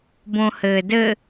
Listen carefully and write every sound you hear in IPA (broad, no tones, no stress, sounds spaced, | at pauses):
b õ h ɘː d ɘ